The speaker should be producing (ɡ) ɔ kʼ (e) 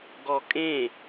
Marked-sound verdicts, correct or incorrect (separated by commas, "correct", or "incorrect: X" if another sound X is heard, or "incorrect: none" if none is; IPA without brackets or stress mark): correct, incorrect: ẽ